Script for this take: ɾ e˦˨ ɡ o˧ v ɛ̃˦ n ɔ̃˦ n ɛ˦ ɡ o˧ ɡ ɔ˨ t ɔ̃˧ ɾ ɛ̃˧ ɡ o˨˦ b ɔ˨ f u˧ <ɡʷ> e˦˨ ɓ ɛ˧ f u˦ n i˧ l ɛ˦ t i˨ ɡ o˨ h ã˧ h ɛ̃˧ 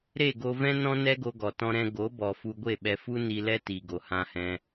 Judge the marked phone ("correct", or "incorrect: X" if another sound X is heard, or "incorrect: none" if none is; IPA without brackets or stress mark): correct